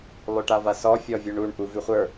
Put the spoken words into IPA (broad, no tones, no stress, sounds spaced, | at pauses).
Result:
lˠ ʉ ʈ a v a s ɔ fʲ ɔ vʲ u ɳ u ɳ ʔ u v ʉ χʷ ə˞